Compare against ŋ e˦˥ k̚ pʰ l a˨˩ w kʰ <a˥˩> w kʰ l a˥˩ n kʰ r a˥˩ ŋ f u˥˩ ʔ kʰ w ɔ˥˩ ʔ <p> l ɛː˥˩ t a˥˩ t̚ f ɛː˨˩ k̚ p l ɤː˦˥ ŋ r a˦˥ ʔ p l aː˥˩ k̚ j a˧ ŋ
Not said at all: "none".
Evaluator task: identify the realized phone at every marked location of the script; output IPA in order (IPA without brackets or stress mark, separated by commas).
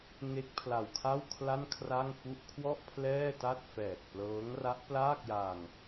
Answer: a˥˩, pʰ